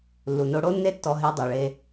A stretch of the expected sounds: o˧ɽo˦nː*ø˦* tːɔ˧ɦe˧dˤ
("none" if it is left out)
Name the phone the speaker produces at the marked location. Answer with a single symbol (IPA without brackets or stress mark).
e˦